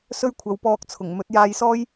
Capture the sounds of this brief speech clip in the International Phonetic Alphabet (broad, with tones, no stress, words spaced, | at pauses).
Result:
sɵ˥ɥkʷʰɐ˨˥wpɔː˧k̚t͡sʰʊ˨˩ŋ mɵ˨˥t̚jaː˧jsɔː˥j